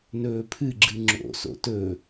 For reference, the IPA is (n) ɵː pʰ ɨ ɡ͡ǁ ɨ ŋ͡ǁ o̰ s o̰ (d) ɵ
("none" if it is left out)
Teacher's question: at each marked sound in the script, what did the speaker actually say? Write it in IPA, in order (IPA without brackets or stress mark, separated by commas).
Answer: n, t